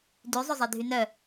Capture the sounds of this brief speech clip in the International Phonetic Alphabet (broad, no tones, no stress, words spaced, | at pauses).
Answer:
dy zˤɵzˤedʱynœ